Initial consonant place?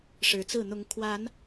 retroflex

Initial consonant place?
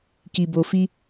velar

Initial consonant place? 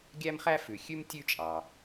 velar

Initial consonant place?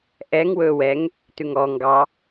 glottal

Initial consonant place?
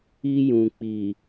palatal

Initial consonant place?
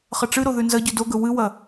uvular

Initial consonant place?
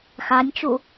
velar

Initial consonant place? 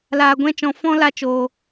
alveolar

